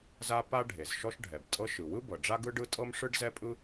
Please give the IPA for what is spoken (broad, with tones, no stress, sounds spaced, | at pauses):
z a˥ p a˥ ɖʱ e˩ z ʃ ɔ˥ ʃ ɖʱ ɛ˩ b tʼ ɤ˥ ʃ ɯ˩ w ɯ˥ b ɤ˩ ɖ͡ʐ a˥ ɡ ɯ˥ ɖ ɯ˥ tʼ ɤ˥ m ʂ ɯ˥ ɖ z ɛ˥ pʼ ɯ˥